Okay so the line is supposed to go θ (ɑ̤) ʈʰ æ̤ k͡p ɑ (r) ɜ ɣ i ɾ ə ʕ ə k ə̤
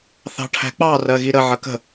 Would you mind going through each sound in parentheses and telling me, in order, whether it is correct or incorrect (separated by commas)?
correct, correct